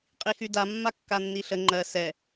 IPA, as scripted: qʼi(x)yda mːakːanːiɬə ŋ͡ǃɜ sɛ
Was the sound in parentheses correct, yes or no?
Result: yes